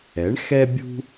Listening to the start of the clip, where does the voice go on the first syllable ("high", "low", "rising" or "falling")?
rising